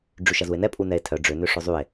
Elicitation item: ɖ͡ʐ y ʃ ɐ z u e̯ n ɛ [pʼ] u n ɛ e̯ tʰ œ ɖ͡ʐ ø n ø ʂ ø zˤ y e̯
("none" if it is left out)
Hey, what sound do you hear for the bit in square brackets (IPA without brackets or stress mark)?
pʼ